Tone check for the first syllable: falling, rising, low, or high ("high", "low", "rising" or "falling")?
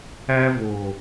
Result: high